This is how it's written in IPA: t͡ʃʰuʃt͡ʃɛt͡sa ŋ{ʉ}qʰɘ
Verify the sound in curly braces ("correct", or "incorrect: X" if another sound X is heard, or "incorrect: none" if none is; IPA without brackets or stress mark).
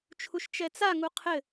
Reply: incorrect: u